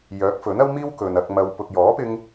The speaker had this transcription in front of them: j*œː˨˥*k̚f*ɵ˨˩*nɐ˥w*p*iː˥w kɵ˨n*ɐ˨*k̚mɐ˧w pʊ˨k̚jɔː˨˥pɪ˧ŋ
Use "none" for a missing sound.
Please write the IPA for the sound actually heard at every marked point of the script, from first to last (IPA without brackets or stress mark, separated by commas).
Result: œː˨˥, ɵ˨˥, m, ɐ˧